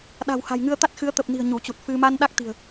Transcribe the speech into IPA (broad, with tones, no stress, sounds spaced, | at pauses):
ɗ a̤˨˩ w h a̤˨˩ j ŋ ɨ˧ ə̯ t̪ a˦˥ t̚ x ɨ˨˦ ə̯ t̪ ə˨˩ p̚ n i̤˨˩ ə̯ ɲ u˧˩ t͡ɕ u˨˩ t̚ f ɨ˧ m a˧ n ɗ a˦˥ k̚ t̪ i̤˨˩ ə̯